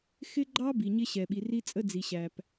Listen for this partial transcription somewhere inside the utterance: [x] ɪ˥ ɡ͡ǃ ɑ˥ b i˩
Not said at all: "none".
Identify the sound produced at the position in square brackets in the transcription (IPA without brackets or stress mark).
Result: x